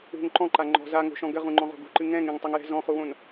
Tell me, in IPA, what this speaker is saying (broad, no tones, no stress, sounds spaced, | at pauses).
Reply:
ṳ ŋ ǃ ɔ̃ ǃ a ŋ͡ǃ ɔ̤ z a ŋ o̤ ʃ ɔ̃ ɡ ɘ ʁ ũ ŋ͡ǃ ɔ̃ ʁ o̤ ɡ ṳ ǃ ɨ ŋ ɛ̃ ŋ ẽ ŋ tˤ u ŋ j ɛ̤ z ɔ̃ χ u w õ n